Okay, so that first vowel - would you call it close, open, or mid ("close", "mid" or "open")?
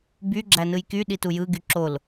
close